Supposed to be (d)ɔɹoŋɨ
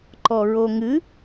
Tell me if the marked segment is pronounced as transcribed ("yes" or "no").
no